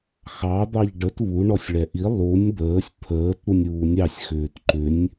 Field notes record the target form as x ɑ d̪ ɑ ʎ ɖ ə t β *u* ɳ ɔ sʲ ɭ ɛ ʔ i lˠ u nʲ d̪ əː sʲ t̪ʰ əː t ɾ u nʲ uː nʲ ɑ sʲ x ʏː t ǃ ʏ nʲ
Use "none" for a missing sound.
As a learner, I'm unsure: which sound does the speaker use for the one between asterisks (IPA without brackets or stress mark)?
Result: u